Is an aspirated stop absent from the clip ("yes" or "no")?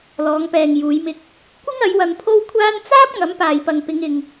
no